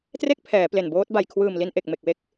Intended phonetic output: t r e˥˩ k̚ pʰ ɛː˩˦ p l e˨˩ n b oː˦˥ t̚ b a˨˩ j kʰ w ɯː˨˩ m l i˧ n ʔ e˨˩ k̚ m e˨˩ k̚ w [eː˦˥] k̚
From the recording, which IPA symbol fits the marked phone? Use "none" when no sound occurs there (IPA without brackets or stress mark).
e˦˥